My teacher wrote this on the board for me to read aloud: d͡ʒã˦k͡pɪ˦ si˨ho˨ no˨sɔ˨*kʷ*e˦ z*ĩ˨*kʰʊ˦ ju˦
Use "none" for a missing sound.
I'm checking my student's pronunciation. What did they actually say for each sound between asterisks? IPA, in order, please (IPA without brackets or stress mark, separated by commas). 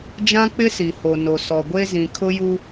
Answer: ɡʷ, ĩ˨